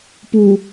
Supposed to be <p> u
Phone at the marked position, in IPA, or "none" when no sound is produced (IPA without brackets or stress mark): p